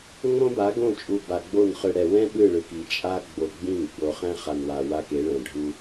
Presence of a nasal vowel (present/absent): present